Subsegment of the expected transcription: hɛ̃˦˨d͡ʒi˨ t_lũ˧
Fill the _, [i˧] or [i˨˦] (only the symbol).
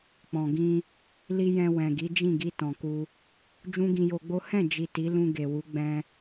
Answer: i˨˦